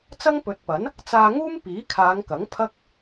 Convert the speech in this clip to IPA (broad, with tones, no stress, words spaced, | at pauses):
t͡sɐ˥ŋpɵ˨˥t̚pɐ˨˥n | t͡saː˧ŋuː˥m piː˨˥kʰaː˨˧ŋkɐ˨˥ŋ pʰɐ˥k̚